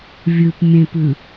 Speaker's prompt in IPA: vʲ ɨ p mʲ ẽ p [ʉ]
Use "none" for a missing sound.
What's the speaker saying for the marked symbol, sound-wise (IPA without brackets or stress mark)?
ʉ